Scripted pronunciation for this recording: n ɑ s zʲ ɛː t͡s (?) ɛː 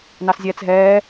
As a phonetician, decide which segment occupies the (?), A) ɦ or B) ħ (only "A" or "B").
A